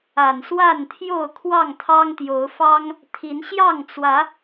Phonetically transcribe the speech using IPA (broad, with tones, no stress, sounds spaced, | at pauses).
a˨˩ n s w a˥˨ n t̪ʰ j o˥˨ ʊ̯ kʰ w ɑ˥˨ ŋ t̪ʰ ɑ˦ ŋ t̪ j o˨˦ ʊ̯ f ɑ˦ ŋ | t̪ʰ i˨˦ n ɕ j ɑ˥˨ ŋ t͡s w ä˨˦